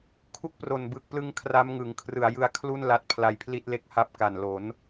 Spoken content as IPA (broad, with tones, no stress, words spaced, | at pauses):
kʰu˦˥k̚pro˨˩nbɯ˨˩k̚plɯ˦˥ŋ kʰra˦˥mŋɯ˩˦ŋ kʰrɯ˩˦a̯jɯ˧a̯kʰlu˥˩n la˦˥t̚pʰla˧jpʰli˥˩t̚le˦˥k̚ ha˦˥p̚ka˨˩nlo˩˦n